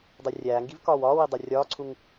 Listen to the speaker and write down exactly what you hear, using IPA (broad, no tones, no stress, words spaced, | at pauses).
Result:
dˤerʲæːŋɡiv kɒːwɒːwi dˤorʲɒːǀʰuŋ